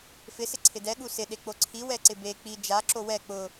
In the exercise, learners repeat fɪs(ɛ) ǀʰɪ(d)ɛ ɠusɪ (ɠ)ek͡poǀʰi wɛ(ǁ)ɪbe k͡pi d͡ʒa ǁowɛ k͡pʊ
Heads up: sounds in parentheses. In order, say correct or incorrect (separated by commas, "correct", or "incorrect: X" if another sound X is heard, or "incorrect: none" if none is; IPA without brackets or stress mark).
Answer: incorrect: ɪ, correct, incorrect: ɗ, incorrect: ǀ